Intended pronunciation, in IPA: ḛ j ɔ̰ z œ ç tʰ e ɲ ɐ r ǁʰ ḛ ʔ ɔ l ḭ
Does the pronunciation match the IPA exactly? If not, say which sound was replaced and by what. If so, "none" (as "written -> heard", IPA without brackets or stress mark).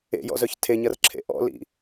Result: ɔ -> ɔ̰